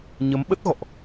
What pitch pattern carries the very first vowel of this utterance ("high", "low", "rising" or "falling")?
rising